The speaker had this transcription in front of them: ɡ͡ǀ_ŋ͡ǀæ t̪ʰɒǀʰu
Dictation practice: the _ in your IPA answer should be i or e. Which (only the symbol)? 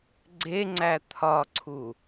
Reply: e